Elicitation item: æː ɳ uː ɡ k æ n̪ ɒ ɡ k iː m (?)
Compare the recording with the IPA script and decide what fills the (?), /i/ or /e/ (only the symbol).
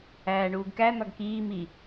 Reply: i